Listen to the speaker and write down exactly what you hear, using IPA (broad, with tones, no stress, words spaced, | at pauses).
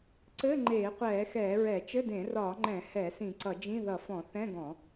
ǀɘ˧˥˧ ŋ͡ǃeː˧˩˧qʷɛː˧˩˧xɛː˧˩˧ɹɛ˧˩˧ t͡ʃɘ˧˥˧dẽ˧˩˧rɒː˧˩˧ŋ͡ǃɛ̃˧˩˧ hɛ˧˩˧ sĩ˧˩˧ǀʌ˧˩˧d͡ʒĩ˧˥˧ðʌ˧˩˧ fɔ̃˧˩˧ θɛ̃˧˥˧ɡɔ̃˧˩˧